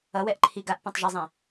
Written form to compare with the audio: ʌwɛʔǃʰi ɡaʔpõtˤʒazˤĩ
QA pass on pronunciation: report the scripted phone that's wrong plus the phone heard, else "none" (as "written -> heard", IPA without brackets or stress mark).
none